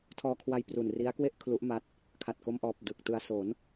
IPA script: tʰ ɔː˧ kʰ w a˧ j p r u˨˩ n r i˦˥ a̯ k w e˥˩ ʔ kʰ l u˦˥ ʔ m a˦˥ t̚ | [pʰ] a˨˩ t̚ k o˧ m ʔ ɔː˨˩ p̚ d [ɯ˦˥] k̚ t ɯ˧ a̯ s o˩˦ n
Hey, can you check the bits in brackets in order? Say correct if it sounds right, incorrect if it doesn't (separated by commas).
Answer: incorrect, incorrect